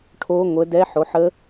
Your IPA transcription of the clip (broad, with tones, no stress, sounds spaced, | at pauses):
ʈʰ o˦˥ ŋʷ ə˨˦ d ɛ˦˥ ħ o˨˦ ħ ə˦˥